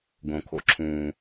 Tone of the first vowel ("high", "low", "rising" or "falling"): low